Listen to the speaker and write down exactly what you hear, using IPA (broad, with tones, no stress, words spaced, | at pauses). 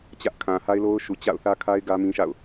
t͡ɕä˦ʔkʰã˨ ha˦ɪ̯lo˦ʊ̯ʃu˨ t͡ɕa̰˦˨ʊ̯θä˦kʰa˦ɪ̯ ɡä˦mĩ˦ʃa̰˦˨ʊ̯